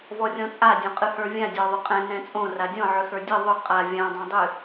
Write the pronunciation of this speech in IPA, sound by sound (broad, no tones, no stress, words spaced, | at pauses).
vɔrʲɔ̃t͡sʼa dʲõqʼɨhə˞vʲã dʲɔðˤʏqʼɛ̃ nɛ̃t͡sʼõ radʲɔ̃ ʕʏxə˞dʲɨ ðˤʏ qʼa vʲã dˤõdˤɨ